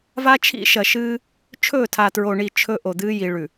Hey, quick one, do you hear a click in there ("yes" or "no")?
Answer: no